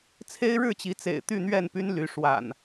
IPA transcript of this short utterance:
t͡sʰ e˦ ɪ̯ ɻ ɻ̩˥˨ t͡ɕ i˨˦ t͡s ḛ˨˩ ɪ̯ t̪ y˥˨ n̪ ɥ ɛ˥˨ n p y˦ n l y˨˦ ʂ w a̰˨˩ n

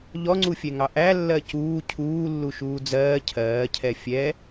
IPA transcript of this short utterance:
ʎ ɔ ŋ͡ǀ u fʲ ɛ ŋ ɑ ʔ æ lː ɜ c uː cʰ uː lː u ʃ uː d͡z ɜː cʰ ɜː cʰ ɛ fʲ ɛ

